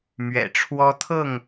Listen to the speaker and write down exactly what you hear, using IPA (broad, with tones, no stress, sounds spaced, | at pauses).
m ɥ ɛ̰˨˩ ʈ͡ʂʰ w ɔ˦ t̪ʰ ɤ˥˨ ŋ